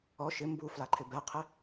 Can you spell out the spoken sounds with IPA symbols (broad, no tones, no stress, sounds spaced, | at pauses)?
ɔ ʃ ɪ m b u f l a ǃʰ ɪ b ɛ qʰ ɪ